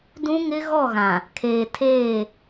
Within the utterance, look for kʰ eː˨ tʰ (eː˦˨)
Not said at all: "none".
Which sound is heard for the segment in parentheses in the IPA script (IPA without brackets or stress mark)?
eː˦˨